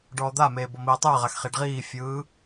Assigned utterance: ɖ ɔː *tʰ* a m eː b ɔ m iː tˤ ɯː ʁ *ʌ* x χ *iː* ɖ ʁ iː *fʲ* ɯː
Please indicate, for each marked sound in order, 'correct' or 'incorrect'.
incorrect, incorrect, incorrect, correct

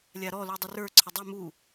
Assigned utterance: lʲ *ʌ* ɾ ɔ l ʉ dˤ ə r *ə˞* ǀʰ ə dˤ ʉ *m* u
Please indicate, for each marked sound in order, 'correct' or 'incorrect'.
incorrect, correct, correct

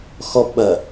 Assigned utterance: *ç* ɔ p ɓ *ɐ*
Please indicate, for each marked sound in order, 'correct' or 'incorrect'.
incorrect, correct

